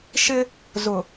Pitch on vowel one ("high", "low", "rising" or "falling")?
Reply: high